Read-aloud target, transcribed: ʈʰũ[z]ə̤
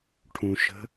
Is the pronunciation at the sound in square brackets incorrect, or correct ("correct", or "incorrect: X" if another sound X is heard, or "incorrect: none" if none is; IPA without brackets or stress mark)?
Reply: incorrect: ʃ